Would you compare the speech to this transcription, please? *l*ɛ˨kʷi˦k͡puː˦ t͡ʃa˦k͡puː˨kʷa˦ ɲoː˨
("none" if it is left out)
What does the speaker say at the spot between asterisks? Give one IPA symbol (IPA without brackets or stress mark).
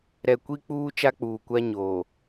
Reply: ɾ